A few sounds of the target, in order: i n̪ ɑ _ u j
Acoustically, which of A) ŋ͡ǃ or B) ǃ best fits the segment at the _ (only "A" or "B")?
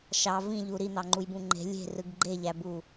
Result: A